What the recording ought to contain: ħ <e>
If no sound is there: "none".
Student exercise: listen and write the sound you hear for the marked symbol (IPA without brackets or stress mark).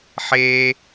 e